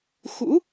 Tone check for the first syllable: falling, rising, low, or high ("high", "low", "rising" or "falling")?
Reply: rising